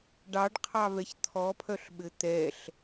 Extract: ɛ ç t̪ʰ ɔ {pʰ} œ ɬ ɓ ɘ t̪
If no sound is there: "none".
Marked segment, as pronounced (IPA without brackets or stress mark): pʰ